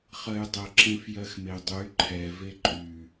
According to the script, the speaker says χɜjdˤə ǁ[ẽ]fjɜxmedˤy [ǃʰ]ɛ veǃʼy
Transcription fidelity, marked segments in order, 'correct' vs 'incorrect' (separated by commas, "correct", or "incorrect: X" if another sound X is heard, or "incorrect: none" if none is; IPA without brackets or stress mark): correct, correct